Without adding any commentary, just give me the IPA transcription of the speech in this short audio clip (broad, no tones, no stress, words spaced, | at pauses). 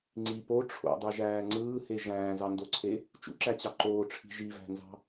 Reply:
ŋ͡ǀi po ʈ͡ʂʰo̰dˤɯʒæː ŋ͡ǀɯːhe ʒæ̃ːzɑndoǀʰe | t͡ʃṵǁæt͡ɕɑ ǃoːʈ͡ʂʰi̤ ʒivæ̤nzɑ̤